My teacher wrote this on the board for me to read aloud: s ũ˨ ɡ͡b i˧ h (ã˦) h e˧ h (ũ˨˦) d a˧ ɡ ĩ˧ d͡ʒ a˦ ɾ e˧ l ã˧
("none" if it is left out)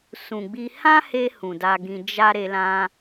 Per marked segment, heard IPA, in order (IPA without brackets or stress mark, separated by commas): ã˦, ũ˨